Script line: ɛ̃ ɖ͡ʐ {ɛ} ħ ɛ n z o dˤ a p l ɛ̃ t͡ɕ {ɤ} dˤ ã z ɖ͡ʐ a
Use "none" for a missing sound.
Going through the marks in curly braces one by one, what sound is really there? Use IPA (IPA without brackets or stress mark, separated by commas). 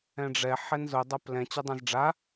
ɛ, ɤ